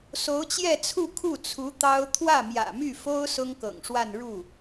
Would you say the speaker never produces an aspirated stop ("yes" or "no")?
no